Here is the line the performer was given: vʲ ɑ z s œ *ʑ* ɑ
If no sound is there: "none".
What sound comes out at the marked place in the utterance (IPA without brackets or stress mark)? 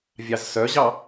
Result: ʑ